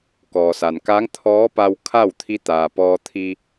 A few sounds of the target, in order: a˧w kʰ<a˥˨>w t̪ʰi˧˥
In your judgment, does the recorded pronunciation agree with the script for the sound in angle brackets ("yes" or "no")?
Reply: yes